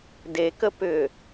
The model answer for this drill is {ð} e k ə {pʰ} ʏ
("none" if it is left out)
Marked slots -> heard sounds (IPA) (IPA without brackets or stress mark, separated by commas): d, p